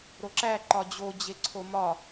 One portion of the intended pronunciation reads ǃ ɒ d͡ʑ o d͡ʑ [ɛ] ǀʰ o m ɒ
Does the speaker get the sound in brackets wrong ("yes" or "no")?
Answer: yes